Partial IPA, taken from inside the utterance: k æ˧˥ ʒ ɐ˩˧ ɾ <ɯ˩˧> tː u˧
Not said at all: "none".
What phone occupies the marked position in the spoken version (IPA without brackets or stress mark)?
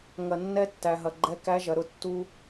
ʊ˩˧